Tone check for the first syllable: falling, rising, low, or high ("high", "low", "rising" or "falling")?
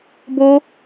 high